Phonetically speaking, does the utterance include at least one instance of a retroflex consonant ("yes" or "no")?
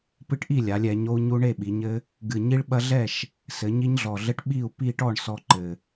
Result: yes